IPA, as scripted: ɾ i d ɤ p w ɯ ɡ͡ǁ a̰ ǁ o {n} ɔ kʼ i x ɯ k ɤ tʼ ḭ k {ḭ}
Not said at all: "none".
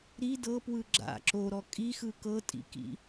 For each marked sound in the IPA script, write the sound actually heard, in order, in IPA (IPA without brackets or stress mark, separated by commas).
ɾ, ḭ